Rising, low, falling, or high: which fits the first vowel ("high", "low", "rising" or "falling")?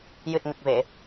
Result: low